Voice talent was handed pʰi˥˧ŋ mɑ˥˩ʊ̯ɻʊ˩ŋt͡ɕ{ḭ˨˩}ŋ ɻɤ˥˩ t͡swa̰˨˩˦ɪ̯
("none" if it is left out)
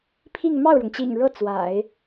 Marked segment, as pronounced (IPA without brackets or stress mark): ḭ˨˩